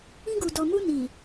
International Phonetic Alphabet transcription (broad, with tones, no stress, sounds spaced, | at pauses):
ĩ˧ ɡ u˨ d ɔ˨ m u˧ n i˨